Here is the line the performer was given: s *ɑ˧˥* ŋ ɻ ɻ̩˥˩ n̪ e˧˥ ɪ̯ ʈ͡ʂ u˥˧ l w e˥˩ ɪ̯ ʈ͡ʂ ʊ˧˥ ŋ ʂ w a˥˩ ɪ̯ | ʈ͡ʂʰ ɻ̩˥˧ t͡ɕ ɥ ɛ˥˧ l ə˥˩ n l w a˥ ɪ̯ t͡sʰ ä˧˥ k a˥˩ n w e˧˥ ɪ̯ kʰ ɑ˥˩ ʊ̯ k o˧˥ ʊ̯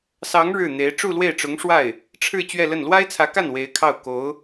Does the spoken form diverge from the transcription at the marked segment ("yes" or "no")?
no